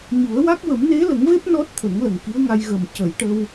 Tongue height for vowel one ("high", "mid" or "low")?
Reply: high